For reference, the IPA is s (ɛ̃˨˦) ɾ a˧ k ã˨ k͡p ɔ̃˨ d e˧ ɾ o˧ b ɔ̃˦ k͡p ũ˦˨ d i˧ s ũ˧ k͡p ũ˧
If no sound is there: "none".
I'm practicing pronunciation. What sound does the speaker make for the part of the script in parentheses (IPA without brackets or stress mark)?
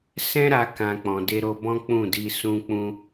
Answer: ɛ̃˦